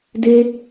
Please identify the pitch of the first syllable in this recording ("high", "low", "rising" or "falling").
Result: high